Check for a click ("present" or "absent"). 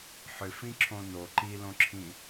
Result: present